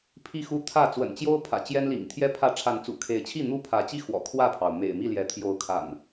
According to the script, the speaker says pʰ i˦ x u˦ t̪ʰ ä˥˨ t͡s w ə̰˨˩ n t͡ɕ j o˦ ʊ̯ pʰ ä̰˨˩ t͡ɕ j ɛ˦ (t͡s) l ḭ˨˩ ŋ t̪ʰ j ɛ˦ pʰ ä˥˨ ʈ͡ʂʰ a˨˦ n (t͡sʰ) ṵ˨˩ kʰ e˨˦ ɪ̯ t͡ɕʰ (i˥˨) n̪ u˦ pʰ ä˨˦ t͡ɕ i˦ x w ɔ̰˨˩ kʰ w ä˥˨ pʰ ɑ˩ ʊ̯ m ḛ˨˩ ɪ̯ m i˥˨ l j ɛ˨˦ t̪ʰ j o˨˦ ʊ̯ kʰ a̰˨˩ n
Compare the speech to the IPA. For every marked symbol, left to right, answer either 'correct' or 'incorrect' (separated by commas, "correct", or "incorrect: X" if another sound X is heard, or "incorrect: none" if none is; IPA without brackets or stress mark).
incorrect: n, incorrect: t͡s, correct